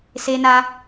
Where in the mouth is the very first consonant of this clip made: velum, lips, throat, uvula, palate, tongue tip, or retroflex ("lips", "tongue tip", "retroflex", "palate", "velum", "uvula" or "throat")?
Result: tongue tip